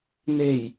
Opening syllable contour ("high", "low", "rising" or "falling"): low